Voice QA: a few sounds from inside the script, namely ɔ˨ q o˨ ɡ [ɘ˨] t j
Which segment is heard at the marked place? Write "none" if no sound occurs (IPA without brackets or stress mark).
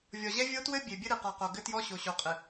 ɘ˦